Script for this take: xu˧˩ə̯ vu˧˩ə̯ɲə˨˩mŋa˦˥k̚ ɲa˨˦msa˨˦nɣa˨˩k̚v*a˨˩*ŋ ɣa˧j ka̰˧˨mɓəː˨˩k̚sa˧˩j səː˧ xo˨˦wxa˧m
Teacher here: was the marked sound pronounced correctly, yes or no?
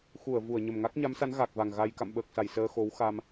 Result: yes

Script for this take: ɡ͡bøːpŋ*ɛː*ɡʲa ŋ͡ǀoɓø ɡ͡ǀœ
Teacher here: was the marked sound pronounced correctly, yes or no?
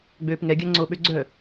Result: no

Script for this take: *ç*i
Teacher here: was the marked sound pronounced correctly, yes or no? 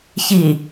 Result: yes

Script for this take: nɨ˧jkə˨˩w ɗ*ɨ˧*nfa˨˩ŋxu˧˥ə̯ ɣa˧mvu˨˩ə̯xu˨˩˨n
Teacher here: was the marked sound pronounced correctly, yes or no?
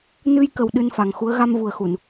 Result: yes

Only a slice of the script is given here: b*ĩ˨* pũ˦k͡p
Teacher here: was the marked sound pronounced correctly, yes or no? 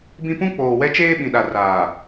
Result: no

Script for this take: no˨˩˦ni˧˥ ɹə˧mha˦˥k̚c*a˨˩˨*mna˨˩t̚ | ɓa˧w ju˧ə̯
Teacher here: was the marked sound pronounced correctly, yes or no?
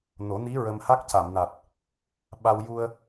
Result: yes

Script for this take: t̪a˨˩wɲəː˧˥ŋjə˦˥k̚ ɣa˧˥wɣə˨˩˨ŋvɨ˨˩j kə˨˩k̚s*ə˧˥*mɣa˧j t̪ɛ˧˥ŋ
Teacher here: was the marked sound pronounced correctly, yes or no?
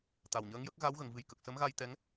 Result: yes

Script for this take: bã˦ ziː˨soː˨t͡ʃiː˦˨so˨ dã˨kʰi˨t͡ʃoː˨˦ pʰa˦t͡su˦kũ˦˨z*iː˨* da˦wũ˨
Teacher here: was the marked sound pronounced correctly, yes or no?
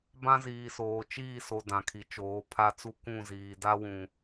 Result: yes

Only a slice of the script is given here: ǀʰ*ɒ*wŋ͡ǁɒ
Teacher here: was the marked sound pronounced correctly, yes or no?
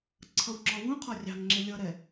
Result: no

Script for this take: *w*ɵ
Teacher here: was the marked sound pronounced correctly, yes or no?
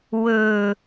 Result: yes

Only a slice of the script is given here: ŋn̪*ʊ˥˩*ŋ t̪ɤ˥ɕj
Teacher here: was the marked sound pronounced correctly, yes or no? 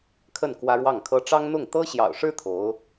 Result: yes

